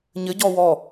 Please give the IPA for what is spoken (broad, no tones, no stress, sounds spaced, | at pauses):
ɲ ɘ ɟ ɔ w ɔ